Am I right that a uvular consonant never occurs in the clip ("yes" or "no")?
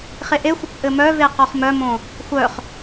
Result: no